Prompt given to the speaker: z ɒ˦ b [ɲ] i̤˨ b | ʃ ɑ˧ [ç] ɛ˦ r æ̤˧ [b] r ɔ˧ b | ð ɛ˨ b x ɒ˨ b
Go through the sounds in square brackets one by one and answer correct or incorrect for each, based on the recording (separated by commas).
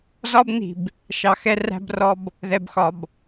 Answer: incorrect, incorrect, correct